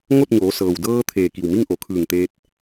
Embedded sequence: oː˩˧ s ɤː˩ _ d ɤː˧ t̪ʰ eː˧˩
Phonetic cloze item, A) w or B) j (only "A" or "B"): A